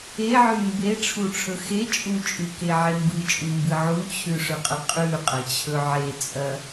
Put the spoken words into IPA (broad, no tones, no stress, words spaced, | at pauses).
eʕʉ mbeʈ͡ʂʰuʈ͡ʂʰɵ xe t͡ʃʼut͡ʃʼʉkeʕe mbɨt͡ʃʼumbɨ ʕut͡ɕʰʉʂɵqʼɐ qʼʉqʼɐt͡ɕʰɵ ʕet͡sʼɐ